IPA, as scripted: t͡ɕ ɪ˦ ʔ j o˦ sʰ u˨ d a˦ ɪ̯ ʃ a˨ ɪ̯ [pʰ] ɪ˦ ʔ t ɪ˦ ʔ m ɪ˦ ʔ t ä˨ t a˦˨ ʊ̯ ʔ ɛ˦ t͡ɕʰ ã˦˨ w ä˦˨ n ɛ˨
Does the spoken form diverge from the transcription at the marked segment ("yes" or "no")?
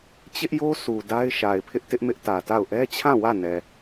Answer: no